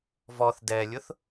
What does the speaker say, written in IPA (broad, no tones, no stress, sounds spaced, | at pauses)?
v ɔ θ d ɛ lʲ ʊ θ